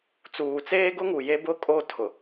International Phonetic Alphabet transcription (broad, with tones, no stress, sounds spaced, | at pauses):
t͡s uː˨ t͡s eː˦ ɡ ʊ˦ ŋ u˨ j e˦ b ʊ˦ kʼ o˦ tʰ ʊ˨